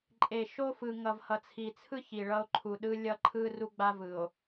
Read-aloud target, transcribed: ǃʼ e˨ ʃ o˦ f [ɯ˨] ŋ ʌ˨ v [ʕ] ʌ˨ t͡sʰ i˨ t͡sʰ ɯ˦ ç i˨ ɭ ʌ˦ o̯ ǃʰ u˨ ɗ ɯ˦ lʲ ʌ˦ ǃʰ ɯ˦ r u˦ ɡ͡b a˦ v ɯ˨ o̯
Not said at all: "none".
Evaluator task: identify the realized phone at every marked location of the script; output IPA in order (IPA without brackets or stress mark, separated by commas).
ɯ˨, h